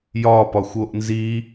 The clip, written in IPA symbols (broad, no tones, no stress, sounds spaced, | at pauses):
j ɒ p ɒ xʷ o ʔ n z i